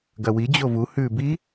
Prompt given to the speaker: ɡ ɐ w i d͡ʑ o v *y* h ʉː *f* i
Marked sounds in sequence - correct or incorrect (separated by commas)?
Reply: incorrect, incorrect